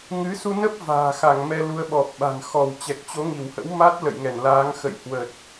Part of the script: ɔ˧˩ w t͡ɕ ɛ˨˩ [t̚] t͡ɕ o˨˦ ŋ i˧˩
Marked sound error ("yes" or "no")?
yes